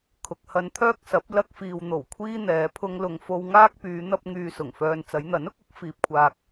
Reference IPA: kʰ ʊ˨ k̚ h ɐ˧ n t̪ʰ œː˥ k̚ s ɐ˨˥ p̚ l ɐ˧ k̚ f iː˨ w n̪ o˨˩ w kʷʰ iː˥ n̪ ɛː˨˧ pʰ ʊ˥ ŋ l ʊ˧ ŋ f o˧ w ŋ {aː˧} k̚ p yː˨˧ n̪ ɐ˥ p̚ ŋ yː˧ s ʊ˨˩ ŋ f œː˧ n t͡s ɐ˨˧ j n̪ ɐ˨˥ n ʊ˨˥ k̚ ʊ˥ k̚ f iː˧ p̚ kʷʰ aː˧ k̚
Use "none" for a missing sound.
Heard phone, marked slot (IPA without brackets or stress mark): aː˥